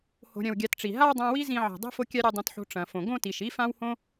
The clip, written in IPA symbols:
h o̤˧ ɾʲ ɐ̃˧ w ɡʲ a˧ t ʈ͡ʂ i˨ ɦ a˦ w dˤ ã˧ w i˦ z ĩ˧ ʕ i̤˨ dˤ i̤˦ f o˦ kʲ a˦ ɾʲ ɐ˧ dˤ ĩ˧ t ħ o̤˧ ʈ͡ʂ ɐ̃˨ f õ˨ ɡ õ˦ t i˨ ʃ i˦ f ã˦ w h õ˦

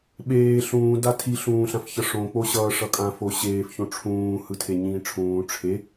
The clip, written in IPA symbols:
ɓ eː ɬ ũː d a tʰ i ɬ ũː ɬ ã f ç ʌ ʂ õ k͡p o ɕ ʌː ʂ ʌ kʼ ã f o ɕ eː f ç õ ʈ͡ʂʰ ũː h ɯ tʰ e ɲ ĩː ʈ͡ʂʰ ũː ʈ͡ʂʰ e

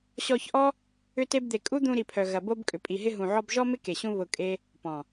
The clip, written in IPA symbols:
ɕ ɔ˧ ç ʔ ɔ˦ | ʏ˦ t e˦ b d̪ e˧ kʼ u˦ d̪ ũ˧ ɾ i˨ pʰ œ˨ ɣ ɐ˨ b o˧ b kʼ ʏ˨ pʼ i˨ ɦ ɪ˧ ɦ ũ˨ ʕ ɔ˧ b ʒ ɔ˦ m ɪ˦ k e˨ ɕ ũ˧ β ʊ˨ kʼ e˦ | p ɔ̃˨

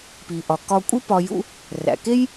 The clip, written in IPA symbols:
p i˩ ʔ ɒ˩ k ɒ˧ kʷʼ i˥ p ɒ˧ j ṵ˥ | r æ̰˩ k e˥ j

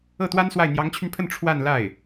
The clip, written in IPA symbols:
ɤ˥˩ t̪ w a˥ n s w a˥˩ ɪ̯ n̪ j ɑ˧˥ ŋ t͡ɕʰ y˧ n pʰ ə˥˧ n ʈ͡ʂʰ w a˥˧ n l a˥˩ ɪ̯

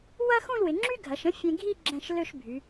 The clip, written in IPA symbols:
w ɐ˥ x ũ˥˧ l w ɪ˩˧ ŋ͡ǁ y˥ ɡʱ ɐ˩˧ ʃ ə̃˥ fʲ ẽ˧ ɡʱ i˥˧ ɡ͡ǁ ɛ̃˧˩ ʃ l ø˥˧ ʃ bʱ y˩˧

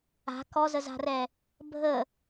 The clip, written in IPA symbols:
a̤ k ɔ z ə z a̤ r ɛ | bʱ ə

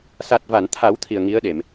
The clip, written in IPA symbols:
s a˨˩ t̚ v a˨˩˨ n t̪ʰ a˨˩˦ w t̪ʰ i˨˩ ə̯ ŋ i˧˥ ə̯ ɗ e˨˩˨ m

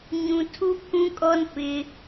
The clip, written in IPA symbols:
ɲ ũ˨ tʰ u˦ pʰ ũ˦ kʼ ɔ˦ n p ɪ˦

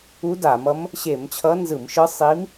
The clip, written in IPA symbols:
u˧˥ d a˧˩˧ m ʌ˧˥ m | ɕ e˧˩˧ m t͡ɕʰ ʌ˧˥ n z ɯ˧˩˧ m ʃ ɯ˧˥ sˤ i˧˥ m

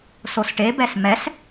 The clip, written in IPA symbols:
s o s ʈ e b ɛ s m ɛ s

